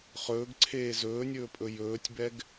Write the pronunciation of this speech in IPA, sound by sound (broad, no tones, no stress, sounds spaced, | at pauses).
χ ɵː ɡ ǀʰ eː z ɵː nʲ ɵː pʼ ɵ j ɵː tʲ b ɛ ɡ